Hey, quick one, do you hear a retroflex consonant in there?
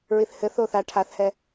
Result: yes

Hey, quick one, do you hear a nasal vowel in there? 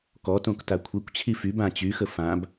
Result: yes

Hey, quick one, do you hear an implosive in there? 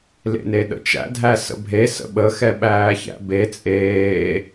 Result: yes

